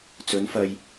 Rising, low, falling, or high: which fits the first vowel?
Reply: rising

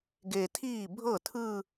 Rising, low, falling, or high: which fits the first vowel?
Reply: low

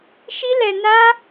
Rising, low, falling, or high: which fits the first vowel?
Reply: high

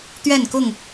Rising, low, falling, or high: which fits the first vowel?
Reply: falling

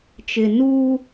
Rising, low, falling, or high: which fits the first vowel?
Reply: low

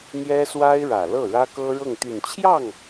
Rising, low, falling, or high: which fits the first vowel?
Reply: high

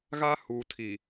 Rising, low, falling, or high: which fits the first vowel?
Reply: high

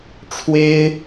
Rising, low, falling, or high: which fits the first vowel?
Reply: high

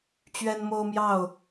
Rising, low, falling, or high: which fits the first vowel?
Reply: high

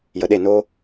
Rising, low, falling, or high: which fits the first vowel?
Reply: low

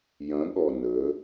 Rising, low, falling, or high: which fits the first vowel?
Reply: rising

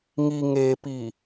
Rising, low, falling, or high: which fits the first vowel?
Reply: low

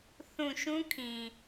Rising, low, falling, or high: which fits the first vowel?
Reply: low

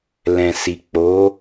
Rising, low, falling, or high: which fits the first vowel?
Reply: low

